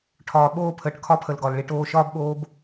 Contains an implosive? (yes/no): yes